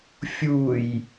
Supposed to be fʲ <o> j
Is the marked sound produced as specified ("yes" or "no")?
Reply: no